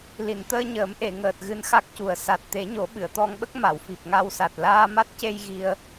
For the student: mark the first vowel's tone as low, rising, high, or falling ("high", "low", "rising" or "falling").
low